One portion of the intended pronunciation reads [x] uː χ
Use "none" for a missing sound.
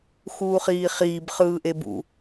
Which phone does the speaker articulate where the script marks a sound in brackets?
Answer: x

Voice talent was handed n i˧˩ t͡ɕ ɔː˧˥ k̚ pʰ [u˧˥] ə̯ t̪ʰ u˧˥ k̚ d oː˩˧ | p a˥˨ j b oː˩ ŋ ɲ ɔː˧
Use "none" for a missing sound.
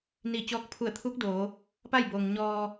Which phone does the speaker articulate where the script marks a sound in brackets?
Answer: u˧˩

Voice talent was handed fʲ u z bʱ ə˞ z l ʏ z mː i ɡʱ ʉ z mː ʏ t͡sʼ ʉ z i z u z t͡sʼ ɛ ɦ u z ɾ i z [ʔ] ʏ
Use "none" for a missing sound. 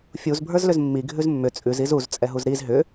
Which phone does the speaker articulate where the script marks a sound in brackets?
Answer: ɦ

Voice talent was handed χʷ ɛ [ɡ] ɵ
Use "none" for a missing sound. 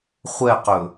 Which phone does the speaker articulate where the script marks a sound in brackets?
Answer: q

